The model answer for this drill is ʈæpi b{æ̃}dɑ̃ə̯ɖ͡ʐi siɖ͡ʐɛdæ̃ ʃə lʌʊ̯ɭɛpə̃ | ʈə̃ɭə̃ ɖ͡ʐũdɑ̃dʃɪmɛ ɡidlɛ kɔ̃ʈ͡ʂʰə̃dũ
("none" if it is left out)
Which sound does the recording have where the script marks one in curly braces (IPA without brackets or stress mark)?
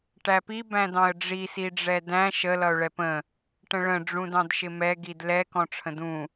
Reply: æ̃